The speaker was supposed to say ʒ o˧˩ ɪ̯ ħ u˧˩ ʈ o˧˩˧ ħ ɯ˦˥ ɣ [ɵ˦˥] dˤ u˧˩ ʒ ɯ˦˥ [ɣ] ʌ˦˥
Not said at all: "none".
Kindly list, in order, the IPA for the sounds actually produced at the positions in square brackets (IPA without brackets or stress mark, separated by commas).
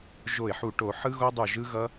o˦˥, ɣ